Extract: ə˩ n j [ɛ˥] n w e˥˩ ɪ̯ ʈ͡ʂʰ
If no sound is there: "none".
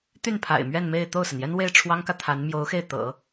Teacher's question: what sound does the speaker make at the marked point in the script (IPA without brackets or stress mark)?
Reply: ɛ˥